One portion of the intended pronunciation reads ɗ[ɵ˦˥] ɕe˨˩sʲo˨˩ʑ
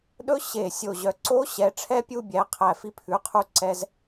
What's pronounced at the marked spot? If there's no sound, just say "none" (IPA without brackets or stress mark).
ɵ˦˥